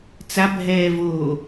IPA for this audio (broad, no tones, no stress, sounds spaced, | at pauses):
t͡s a bʱ ɛː v oː